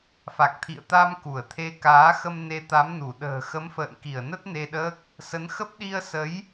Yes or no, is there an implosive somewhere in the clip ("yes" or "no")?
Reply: yes